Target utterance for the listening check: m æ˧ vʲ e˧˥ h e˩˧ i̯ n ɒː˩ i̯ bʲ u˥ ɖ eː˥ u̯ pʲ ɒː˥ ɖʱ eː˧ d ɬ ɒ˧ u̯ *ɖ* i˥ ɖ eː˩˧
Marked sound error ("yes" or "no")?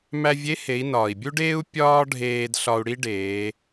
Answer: yes